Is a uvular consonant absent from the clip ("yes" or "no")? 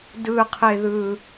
no